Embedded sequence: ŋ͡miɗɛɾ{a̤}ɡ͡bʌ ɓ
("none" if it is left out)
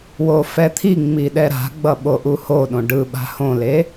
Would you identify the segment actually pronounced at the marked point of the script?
a̤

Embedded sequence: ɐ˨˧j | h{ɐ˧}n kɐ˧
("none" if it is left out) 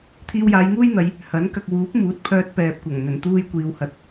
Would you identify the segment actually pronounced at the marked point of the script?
ɐ˨˥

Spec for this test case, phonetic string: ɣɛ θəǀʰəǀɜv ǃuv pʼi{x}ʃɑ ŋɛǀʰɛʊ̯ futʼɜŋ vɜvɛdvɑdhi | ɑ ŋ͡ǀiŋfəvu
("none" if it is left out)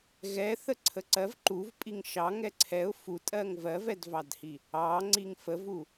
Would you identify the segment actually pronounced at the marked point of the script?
ŋ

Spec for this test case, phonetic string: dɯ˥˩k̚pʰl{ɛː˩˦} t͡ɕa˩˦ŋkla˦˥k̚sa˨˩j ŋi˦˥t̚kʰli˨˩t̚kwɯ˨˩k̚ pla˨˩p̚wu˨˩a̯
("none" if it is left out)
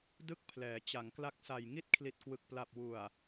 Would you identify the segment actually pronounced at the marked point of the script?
ɛː˩˦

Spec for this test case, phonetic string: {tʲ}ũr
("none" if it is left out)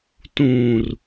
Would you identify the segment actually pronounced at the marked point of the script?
t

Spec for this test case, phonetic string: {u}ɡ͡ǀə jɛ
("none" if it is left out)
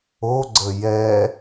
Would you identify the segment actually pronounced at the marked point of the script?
o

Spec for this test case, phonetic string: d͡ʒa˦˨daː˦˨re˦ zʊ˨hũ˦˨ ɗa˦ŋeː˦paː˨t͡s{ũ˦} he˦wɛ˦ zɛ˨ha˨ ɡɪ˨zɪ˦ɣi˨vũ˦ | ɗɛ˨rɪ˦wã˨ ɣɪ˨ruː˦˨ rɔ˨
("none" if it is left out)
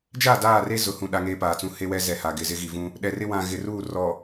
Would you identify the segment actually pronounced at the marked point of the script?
ũ˦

